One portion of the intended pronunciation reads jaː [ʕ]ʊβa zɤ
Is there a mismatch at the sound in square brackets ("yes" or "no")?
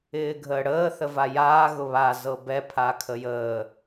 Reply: yes